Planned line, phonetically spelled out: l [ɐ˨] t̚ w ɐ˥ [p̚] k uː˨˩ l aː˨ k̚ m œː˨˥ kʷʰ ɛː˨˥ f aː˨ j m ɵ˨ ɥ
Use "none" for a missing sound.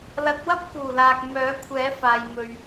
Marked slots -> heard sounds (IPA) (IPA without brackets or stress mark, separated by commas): ɐ˨˥, p̚